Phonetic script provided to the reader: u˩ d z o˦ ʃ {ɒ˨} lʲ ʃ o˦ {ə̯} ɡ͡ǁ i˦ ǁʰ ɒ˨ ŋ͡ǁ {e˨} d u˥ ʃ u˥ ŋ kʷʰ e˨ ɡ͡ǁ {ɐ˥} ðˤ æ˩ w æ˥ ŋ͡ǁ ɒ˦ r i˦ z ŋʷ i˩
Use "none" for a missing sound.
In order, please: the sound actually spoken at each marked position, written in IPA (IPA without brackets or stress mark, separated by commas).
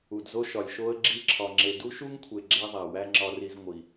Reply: ɒ˩, ə̯, e˨, æ˥